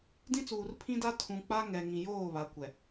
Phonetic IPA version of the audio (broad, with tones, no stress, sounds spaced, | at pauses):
d ĩ˦ t͡s uː˨ r pʰ ĩ˦ d a˦ tʰ ũ˨ k͡p a˦ ŋ ɛ˨ ŋ ĩ˨ j oː˦˨ β a˨ kʷ ɛ˨